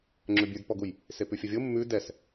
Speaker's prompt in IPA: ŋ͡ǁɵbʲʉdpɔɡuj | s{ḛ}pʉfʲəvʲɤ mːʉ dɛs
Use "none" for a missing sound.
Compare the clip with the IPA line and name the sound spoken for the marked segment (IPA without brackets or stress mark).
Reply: e